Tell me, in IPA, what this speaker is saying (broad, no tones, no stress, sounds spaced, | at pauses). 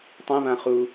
tˤ ɛ̃ β ã χ u